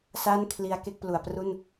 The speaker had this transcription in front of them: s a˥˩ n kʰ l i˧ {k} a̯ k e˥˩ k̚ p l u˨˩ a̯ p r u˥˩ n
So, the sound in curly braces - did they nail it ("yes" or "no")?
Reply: no